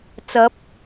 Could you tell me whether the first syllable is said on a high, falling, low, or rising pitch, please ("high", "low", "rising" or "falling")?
rising